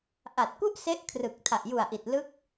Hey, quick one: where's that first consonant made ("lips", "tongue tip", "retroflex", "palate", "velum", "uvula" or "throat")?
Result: throat